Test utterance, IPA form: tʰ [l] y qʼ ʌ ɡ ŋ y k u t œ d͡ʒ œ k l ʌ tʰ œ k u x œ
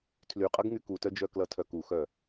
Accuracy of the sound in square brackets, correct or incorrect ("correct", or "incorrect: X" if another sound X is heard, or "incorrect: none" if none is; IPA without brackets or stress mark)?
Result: correct